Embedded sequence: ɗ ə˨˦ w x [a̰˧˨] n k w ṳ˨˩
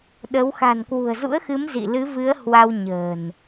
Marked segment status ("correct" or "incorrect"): incorrect